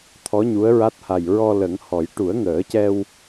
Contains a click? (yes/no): no